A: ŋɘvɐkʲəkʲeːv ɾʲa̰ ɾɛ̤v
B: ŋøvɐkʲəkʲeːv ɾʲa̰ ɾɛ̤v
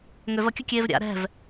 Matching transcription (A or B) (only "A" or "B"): B